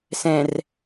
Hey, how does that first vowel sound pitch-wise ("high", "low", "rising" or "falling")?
low